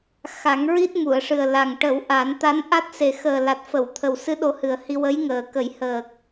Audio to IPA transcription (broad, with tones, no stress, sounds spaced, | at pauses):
x a˨˩˦ ŋ ɹ i˦˥ t̚ m u˨˩˨ ə̯ ʂ ɨ˨˩ ə̯ l a˨˩ ŋ ʈ ə˨˩˦ w ʔ a˨˩˦ n t̪ a˧˥ n ʔ a˦˥ t̚ s e˨˩ x əː˨˩ l a˨˩ t̚ f ə˨˩˨ w t̪ʰ ə˨˩ w s ɨ˧˥ ɗ o˧ h ɨ˨˩ ə̯ h i˧ w ə˧˥ j ŋ əː˨˩ k ə˨˩˦ j h əː˨˩ k̚